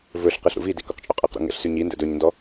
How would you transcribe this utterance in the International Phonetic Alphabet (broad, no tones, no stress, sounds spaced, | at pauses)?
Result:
v ɵ ɬ q e ɬ ɾ ṵ v i d i k o q t͡ʃʼ o qʼ e q ɾ ṵ ŋ ɛ̰ ɬ s y ɲ i n d ɛ̰ d ɵ ɲ n d ɔ